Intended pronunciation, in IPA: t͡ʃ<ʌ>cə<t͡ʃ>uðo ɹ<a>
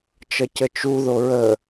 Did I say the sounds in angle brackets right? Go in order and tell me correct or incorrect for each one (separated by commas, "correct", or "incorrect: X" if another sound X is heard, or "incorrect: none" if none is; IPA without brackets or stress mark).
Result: correct, correct, incorrect: ə